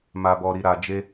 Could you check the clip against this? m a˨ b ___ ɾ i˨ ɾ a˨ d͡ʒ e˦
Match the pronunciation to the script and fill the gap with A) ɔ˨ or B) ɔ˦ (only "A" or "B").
A